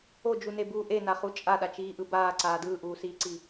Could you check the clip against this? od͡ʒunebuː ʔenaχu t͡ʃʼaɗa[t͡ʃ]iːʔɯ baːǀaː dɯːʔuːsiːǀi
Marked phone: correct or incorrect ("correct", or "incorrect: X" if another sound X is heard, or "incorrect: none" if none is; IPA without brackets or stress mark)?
correct